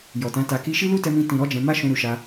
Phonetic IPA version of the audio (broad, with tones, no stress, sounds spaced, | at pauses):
j ɔ˨ t ã˨˦ t a˧ k i˦ ʃ i˦ l u˦ t ɛ˧ m ĩ˧ t ĩ˨ ɾ ɔ˨˦ d͡ʒ ɛ̃˧ m a˦ ʃ ũ˧ ɾ u˨ ʃ a˧